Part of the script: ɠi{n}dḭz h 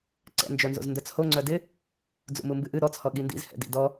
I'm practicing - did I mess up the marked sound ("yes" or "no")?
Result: no